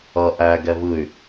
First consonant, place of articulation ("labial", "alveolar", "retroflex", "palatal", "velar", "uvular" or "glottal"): glottal